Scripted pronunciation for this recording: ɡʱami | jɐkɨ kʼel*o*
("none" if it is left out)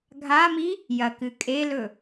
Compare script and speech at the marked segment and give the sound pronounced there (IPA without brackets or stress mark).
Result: ɵ